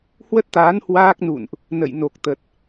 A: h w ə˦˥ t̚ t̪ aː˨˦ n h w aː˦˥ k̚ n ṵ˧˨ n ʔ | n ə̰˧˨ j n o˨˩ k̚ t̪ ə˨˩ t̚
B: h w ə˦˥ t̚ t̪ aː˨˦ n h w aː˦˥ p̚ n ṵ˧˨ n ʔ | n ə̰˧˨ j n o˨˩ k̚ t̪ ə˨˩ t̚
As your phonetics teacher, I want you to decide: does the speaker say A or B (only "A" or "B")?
A